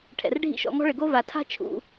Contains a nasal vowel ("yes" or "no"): no